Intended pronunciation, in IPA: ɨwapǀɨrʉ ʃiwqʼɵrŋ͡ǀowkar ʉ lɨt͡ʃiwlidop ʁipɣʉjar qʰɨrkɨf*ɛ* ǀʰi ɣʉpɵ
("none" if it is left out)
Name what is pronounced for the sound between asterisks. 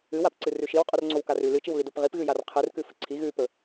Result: ɨ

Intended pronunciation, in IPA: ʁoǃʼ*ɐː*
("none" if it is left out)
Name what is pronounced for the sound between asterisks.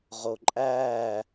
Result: æː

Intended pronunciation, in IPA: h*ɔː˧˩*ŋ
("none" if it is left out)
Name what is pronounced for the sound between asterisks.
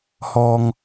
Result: ɔː˩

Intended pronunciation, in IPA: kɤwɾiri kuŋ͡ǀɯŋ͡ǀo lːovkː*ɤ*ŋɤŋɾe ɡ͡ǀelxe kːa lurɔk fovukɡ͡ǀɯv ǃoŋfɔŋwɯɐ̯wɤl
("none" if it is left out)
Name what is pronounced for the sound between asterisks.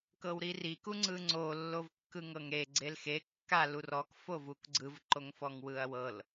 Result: ɯ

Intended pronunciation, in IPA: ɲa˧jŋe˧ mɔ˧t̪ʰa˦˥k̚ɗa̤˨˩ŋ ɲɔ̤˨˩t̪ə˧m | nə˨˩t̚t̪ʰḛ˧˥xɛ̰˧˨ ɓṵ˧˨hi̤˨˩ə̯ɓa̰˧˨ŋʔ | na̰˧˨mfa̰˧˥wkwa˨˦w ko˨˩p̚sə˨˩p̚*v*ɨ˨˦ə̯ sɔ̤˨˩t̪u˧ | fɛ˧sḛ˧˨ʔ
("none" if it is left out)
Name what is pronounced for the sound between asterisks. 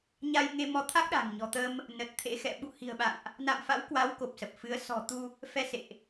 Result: f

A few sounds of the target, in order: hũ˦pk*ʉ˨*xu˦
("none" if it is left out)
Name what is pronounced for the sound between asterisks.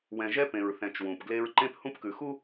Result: ʉ˨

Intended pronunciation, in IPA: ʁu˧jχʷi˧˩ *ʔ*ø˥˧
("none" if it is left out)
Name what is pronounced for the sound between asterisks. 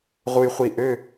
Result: ʔ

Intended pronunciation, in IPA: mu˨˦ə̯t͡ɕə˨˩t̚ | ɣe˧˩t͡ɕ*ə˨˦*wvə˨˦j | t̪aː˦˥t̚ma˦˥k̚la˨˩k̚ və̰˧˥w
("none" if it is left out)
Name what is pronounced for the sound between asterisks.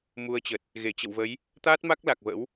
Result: ə̰˧˨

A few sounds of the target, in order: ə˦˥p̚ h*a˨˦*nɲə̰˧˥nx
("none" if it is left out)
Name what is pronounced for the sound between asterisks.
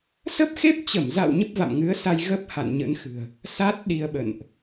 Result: a̰˧˨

